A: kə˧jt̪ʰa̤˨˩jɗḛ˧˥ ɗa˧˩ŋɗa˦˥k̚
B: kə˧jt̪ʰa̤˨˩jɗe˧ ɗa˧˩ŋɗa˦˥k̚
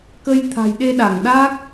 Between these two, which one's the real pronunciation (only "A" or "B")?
B